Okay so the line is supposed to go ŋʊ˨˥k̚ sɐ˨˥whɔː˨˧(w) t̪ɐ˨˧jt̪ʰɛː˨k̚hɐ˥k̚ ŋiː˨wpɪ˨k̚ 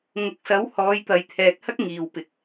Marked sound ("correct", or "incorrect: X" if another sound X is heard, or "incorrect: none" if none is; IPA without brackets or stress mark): incorrect: j